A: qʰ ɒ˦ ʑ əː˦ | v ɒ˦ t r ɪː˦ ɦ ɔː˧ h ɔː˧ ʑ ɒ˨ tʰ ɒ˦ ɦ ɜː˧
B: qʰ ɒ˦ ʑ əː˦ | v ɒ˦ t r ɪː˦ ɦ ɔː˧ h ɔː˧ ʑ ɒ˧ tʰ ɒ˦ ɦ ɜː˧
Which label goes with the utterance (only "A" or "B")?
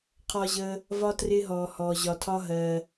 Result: B